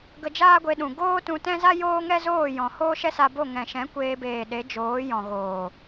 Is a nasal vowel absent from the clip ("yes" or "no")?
no